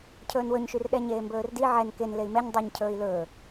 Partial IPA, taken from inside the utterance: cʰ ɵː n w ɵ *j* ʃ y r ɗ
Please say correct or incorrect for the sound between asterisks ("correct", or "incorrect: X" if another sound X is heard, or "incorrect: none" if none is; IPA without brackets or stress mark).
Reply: incorrect: ɲ